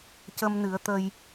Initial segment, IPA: c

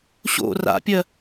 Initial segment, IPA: ɕ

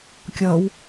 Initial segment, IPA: kʲ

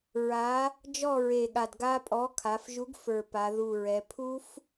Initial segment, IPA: ɹ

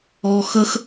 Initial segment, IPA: ɔ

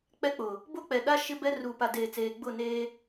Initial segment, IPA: k͡p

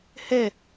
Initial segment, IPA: h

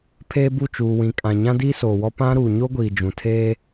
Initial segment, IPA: pʰ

